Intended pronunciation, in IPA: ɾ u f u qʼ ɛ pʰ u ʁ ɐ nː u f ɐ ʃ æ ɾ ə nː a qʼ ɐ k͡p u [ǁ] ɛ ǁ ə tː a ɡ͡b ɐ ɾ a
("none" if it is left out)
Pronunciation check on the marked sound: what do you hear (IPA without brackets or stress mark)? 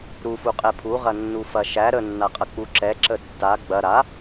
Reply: ǁ